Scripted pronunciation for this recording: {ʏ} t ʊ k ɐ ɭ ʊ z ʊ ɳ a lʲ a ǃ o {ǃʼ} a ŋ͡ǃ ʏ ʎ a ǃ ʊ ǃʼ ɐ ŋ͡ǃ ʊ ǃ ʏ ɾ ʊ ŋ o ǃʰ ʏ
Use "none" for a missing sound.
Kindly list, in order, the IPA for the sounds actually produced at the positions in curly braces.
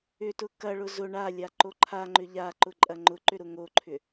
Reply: ʏ, ǃʰ

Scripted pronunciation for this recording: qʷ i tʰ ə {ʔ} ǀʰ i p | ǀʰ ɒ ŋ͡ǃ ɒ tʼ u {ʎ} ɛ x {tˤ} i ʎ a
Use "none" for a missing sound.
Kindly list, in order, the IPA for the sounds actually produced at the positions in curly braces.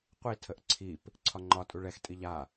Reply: ʔ, ɭ, tʼ

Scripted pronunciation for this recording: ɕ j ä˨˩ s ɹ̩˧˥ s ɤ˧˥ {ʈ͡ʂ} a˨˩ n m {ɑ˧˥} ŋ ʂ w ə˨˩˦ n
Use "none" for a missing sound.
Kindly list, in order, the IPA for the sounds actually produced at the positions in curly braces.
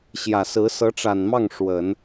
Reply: ʈ͡ʂ, ɑ˥˩

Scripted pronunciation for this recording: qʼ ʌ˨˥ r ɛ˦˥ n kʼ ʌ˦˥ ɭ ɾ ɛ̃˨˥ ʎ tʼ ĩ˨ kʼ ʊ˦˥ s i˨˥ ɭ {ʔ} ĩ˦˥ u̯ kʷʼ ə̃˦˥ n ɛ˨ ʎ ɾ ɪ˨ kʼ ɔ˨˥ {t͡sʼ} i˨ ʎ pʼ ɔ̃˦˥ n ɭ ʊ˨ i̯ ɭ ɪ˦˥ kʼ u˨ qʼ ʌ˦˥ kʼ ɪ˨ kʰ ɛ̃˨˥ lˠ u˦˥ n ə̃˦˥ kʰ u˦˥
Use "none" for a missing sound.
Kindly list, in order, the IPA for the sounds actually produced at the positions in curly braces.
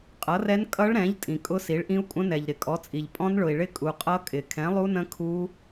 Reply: ʔ, t͡sʼ

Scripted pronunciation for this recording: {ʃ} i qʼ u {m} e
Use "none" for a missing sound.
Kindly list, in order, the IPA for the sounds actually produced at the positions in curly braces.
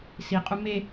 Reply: s, m

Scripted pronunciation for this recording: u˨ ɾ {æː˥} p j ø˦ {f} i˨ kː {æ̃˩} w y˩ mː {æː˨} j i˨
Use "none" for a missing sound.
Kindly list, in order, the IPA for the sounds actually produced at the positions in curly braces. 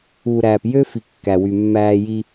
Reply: æː˨, f, æ˩, æː˨

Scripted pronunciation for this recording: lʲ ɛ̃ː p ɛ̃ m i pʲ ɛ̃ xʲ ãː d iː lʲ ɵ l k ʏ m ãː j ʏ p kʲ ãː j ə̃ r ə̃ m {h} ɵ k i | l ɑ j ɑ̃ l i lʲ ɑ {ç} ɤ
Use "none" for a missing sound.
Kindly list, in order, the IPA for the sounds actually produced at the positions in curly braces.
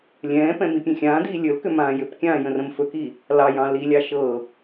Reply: f, ʃ

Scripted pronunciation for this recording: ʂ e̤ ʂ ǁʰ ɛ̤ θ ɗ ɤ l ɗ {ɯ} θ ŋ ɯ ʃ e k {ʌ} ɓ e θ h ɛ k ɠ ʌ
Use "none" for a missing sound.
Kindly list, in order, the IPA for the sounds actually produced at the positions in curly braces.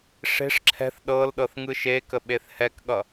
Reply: ɤ, ə

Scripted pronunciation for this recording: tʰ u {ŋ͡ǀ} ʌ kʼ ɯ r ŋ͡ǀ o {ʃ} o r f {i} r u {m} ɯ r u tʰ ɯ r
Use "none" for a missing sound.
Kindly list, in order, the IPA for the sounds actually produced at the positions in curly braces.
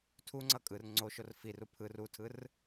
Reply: ŋ͡ǀ, ʃ, i, pʰ

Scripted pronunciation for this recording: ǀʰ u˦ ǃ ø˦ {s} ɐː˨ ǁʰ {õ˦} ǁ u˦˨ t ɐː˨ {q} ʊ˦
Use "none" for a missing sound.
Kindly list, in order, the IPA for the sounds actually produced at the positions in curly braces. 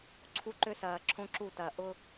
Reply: s, õ˦, ʔ

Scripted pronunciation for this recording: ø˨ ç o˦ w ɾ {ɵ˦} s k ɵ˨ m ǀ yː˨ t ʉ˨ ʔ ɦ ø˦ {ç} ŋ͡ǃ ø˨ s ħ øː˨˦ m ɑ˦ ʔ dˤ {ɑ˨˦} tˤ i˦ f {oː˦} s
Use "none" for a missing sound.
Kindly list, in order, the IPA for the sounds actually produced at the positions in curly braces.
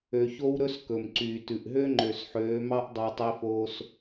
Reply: ɵ˦, none, ɑ˦, oː˦

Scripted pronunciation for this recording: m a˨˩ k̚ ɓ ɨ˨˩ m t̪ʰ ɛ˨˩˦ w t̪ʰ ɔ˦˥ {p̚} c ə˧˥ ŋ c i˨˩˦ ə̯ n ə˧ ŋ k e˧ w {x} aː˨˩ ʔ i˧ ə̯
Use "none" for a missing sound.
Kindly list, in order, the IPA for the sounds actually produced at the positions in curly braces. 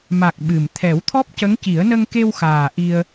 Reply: p̚, x

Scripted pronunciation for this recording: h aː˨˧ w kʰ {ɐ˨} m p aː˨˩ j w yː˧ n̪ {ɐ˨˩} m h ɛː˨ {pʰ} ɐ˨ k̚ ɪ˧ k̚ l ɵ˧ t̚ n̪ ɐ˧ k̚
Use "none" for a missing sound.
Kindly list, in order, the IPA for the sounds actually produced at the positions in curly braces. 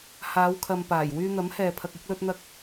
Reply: ɐ˨, ɐ˨˥, pʰ

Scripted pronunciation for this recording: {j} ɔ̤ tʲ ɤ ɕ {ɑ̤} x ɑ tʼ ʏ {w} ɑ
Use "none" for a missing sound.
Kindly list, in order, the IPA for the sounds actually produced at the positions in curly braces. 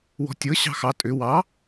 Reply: w, ɑ̤, w

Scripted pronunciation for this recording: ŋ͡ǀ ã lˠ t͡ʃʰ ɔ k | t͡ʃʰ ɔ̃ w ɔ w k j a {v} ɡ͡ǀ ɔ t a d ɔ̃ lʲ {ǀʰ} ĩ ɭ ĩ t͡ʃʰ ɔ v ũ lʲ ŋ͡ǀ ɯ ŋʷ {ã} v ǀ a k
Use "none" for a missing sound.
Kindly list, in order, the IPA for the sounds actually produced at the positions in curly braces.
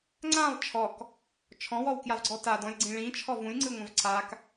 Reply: v, ɡ͡ǀ, ã

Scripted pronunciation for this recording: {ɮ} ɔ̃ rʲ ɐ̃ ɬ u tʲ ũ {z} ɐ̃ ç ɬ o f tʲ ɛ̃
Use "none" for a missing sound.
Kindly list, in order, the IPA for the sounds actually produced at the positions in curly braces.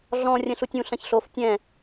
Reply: ɮ, ɬ

